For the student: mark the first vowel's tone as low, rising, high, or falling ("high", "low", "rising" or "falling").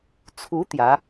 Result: rising